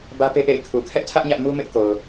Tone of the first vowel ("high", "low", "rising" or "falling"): high